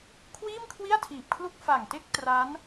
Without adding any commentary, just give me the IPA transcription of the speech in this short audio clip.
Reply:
kʰ w iː˥˩ m kʰ w i˥˩ a̯ tʰ iː˨˩ p̚ kʰ l u˥˩ k̚ f a˨˩ ŋ t e˥˩ k̚ t r a˦˥ n

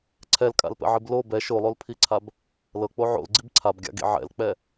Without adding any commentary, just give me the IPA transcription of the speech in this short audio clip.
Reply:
ǀʰ ɛ l kʼ a̰ l p ɛ̰ ʕ i b l o b ɛ ʃ o lˠ o l pʰ i ǀʰ a b | l ɤ k͡p o ʕ o̰ l ɡ͡ǀ i b ǀʰ a b ɡʲ a̰ ɡ ḭ ʕ ɛ̰ l k͡p ɛ

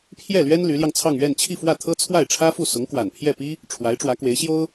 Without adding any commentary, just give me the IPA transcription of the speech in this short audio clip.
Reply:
pʰ j ɛ˥˩ l ɥ ɛ˥ n l y˧˥ l j ɑ˧ ŋ t͡sʰ ɑ˥˧ ŋ ɥ ɛ˥˧ n t͡ɕʰ i˥˧ f w ä˥˩ t̪ʰ ɤ˥ t͡sʰ w a˥˩ ɪ̯ ʈ͡ʂʰ ä˥ f u˥˩ s ʊ˧˥ ŋ k w a˨˩ n pʰ j ɛ˥˩ p i˥ | ʈ͡ʂʰ w a˧˥ ɪ̯ ʈ͡ʂ w ä˧˥ k w e˧˥ ɪ̯ ɕ j o˥ ʊ̯

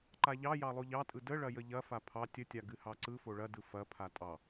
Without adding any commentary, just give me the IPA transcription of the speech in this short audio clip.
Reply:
ǃ a ʎ ɑ j ɑ lˠ o ʎ ɑ tʼ ɯ d ə ɭ ɐ j ə ʎ ɐ f a pʰ ɑ tʲ ə tʲ a ɡ ɨ h ɑ ǀ ɯ f o ɭ ɐ d ɯ f ɐ pʰ a tʼ ɑ

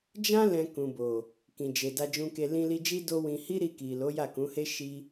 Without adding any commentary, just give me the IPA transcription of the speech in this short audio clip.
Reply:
d͡ʒ ã˦ l ɛ̃˧ k ũ˨ b o˨ | k ĩ˨ d͡ʒ e˨ d a˧ d͡ʒ ũ˧ k e˧ l ĩ˧ l i˧ d͡ʒ i˦ d o˦ w ĩ˧ h i˦ ɾ i˧ k i˨ l o˨˦ j a˦˨ k ũ˨˦ h e˦ ʃ i˦

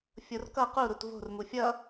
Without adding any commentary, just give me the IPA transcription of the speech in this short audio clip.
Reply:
fʲ o r k ʌ q u ɾ u t v o̤ r m u fʲ ʌ

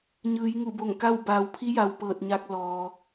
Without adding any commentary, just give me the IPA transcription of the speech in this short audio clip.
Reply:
ɲ ɯː˩˧ j ŋ u˧˩ b o˧˩ ŋ k a˥˨ w b aː˩˧ w pʰ i˧˥ j a˩ w p ɤː˧˩ t̚ ɲ a˧ k̚ l ɔː˩

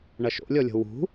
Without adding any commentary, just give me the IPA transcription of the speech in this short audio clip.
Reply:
ɳ ɐ ʃ o̰ lʲ ɔ lʲ o̤ w ṳ

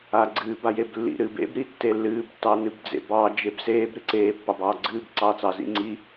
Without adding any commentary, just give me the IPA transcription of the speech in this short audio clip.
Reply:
a ɡ͡ǀ ɨː b a j e b lː ḭ ɾ ɨː b ḛ b ɾ i tː e lː ɨː b tː ɑ n ɨ b d͡z ḛ b ɑ d͡ʒ e b s eː b ɾ ɨ ǀ eː pː ɑ b ɑː ɡ͡ǀ ɨː b ǀ ɑː t͡s ɑ z ḭ ŋ͡ǀ i

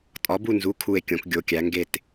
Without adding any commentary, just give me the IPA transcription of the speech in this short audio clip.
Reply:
tʼ ɒ˨˥ b u˥˧ n z u˨˥ kʰ u˥˧ e̯ kʲ õ˨˥ k ɡʲ o˨˥ kʲ æ˨˥ ŋ ɡ e˥˧ t

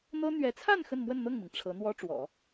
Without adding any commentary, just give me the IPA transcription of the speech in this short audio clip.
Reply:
n̪ ɤ˥ n̪ ɥ ɛ˧˥ t͡sʰ a˥˧ n x ə˥˧ n m w ə˥˧ n n̪ ɤ˥˩ ŋ m i˩ ŋ ʈ͡ʂʰ ɤ˧˥ n̪ w ɔ˥ ʈ͡ʂ w ɔ̰˨˩˦

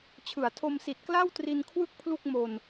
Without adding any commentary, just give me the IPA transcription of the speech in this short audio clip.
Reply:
t͡ɕʰ ɯ˩˦ a̯ tʰ o˧ m s i˨˩ t̚ k l a˥˩ w t r i˧ n kʰ w ɯ˥˩ k̚ pʰ l u˥˩ k̚ m o˧ n

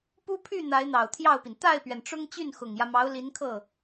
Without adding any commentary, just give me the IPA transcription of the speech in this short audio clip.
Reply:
p u˥ pʰ y˥˩ n̪ a˧˥ ɪ̯ n̪ ɑ˨˩ ʊ̯ t̪ʰ j ɑ˥˩ ʊ̯ p i˩ n t̪ a˥˩ ɪ̯ p ɥ ɛ˩ n ʈ͡ʂ ʊ˥ ŋ t͡ɕ y˥˩ n x ʊ˨˩ ŋ j ä˦ m ɑ˧˥ ʊ̯ l i˧˥ n kʰ ɤ˥˩

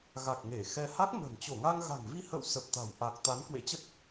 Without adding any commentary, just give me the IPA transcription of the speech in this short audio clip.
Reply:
ɣ a˨˩ k̚ ŋ e˧˩ x ɛ˧ h a˦˥ k̚ m ə̤˨˩ n t͡ɕ o˧˩ ŋ a˧ ŋ ɣ a̤˨˩ ŋ v i˧ h ə̰˧˨ w s ə˨˩ p̚ t̪ a̤˨˩ w ʔ a˨˩ k̚ t̪ a˨˦ n k w ḛ˧˥ t͡ɕ ə˦˥ t̚

